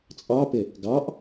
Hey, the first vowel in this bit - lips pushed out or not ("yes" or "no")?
no